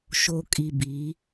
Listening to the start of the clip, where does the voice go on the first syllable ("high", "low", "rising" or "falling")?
low